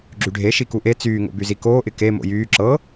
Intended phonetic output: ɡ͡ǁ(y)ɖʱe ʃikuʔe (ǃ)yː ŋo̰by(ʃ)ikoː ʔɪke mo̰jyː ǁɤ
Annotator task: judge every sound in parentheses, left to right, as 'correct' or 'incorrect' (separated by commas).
correct, incorrect, incorrect